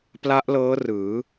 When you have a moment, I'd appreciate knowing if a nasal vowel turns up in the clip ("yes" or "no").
no